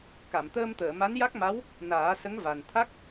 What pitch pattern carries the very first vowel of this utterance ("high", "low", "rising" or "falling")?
low